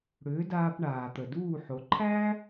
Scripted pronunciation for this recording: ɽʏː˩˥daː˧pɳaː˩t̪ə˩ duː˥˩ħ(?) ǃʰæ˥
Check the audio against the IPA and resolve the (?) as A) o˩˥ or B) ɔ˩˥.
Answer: A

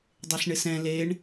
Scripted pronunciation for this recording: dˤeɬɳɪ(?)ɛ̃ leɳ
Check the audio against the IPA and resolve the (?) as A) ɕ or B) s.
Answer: B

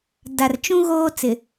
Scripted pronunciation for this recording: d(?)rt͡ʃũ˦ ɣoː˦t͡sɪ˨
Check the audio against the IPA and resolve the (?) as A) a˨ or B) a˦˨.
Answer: A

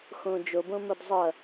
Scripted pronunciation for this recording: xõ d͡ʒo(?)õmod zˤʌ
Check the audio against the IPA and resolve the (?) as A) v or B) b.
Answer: B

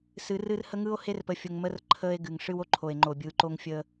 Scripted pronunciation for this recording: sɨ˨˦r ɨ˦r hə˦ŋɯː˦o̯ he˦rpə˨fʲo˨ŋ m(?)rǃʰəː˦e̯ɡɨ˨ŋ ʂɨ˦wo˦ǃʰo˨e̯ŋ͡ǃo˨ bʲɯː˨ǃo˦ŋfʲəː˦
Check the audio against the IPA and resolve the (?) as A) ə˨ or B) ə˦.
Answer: B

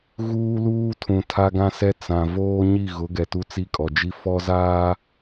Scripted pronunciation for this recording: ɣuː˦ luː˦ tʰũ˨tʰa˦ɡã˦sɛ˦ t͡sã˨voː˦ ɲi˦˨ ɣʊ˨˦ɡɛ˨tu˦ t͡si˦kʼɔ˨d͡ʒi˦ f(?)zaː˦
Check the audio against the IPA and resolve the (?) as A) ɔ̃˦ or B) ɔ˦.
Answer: B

